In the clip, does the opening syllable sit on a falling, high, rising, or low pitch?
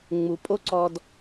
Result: low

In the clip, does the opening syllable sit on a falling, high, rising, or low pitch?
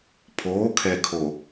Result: rising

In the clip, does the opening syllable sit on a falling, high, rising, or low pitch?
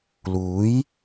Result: rising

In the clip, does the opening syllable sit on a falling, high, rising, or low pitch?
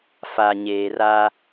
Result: low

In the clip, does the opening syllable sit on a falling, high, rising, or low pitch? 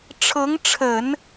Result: rising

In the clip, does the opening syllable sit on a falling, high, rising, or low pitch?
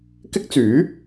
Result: high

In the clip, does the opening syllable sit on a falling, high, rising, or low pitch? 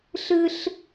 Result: high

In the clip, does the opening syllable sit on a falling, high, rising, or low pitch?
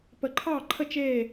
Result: low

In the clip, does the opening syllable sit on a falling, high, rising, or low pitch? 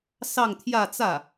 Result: falling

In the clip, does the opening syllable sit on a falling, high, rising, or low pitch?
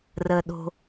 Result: low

